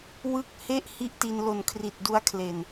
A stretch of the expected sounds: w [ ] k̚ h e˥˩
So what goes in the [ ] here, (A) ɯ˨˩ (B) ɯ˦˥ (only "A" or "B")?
B